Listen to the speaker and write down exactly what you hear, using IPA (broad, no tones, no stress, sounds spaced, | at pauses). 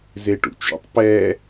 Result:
z e ʈ ṵ t͡ʃ ṵ tˤ p ɛ